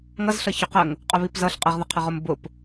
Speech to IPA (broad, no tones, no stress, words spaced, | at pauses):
ŋʌzɬʌ çʊqəŋ | qʼʊβipzʌɬ qʼəʁðəqʰəʁʊm bʊp